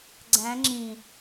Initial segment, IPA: ɡ͡ǀ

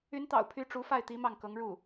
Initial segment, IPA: y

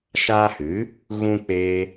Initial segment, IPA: ʃ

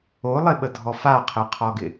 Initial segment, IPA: o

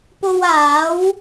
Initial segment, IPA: p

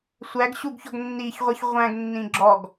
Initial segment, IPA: sʷ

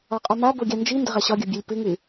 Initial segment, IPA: ɒ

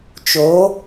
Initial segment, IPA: t͡ʃ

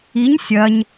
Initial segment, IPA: i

